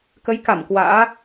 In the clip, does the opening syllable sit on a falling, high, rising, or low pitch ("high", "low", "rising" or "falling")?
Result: rising